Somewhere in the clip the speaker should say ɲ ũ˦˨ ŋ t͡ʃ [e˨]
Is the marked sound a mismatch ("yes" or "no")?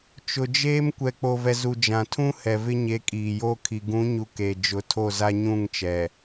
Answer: yes